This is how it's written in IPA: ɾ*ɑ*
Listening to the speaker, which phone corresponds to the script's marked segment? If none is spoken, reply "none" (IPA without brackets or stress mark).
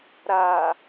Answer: a